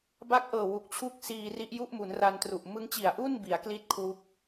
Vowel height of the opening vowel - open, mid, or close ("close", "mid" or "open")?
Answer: open